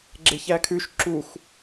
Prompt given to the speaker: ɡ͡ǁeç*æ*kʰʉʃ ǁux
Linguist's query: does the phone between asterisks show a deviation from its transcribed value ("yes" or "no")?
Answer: no